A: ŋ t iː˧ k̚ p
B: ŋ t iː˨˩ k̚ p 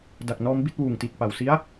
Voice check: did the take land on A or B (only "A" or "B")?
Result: B